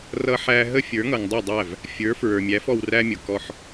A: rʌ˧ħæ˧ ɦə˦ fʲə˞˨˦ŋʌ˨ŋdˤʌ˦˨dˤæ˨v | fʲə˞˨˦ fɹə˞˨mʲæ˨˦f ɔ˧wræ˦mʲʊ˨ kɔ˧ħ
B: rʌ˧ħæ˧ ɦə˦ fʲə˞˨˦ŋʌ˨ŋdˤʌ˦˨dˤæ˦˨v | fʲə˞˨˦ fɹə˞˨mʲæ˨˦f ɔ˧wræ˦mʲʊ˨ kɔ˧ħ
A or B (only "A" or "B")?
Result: B